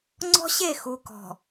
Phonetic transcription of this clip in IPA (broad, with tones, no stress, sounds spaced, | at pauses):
ŋ͡ǀ ɔ̤˦ ɕ e˦˨ x u˨ k ɔ̤˨